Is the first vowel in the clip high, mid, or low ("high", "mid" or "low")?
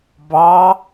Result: low